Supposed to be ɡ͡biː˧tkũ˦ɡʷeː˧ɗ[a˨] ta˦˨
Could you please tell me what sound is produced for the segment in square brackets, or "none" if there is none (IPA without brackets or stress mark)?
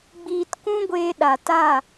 a˨